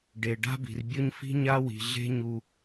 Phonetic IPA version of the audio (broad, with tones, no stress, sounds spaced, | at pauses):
ɖ e˩ ɖ a̤˦ b i̤˩ r bʲ ʊ˦ ɲ f i̤˦ ɲ a˥ w i̤˨ ɮ e̤˥ ɲ u˨